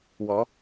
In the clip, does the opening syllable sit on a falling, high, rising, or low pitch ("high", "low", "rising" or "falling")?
rising